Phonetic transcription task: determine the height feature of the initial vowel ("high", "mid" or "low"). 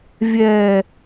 mid